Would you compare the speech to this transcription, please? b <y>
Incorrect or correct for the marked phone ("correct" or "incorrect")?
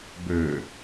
incorrect